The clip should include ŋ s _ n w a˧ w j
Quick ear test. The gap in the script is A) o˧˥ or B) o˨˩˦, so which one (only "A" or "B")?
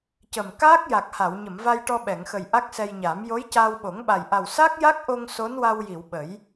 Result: A